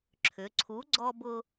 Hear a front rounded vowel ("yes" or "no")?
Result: yes